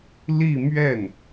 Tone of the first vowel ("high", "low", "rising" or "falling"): falling